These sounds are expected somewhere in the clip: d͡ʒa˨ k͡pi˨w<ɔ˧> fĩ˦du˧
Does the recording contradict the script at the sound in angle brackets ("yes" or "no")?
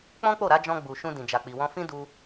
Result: yes